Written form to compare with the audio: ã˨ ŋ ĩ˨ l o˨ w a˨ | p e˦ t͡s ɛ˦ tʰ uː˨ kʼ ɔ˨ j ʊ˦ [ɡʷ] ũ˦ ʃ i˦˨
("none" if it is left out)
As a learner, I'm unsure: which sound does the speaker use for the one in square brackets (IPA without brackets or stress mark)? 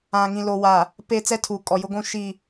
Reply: ɡʷ